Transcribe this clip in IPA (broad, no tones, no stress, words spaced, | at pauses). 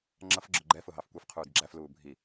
ŋ͡ǁʌfɡ͡ǁʊ ɡ͡ǃɛ fʊɦɑfkʷɛf qʰuːdɡ͡ǁæf luːbʱi